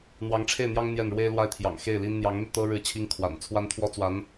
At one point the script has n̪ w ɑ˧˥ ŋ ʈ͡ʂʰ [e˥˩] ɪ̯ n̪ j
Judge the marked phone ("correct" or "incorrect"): correct